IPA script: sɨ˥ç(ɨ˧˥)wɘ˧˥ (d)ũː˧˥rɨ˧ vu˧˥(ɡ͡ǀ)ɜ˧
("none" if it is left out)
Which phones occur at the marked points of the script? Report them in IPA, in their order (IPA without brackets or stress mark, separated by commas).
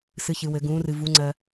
ɨ˧˥, ɡ, ŋ͡ǀ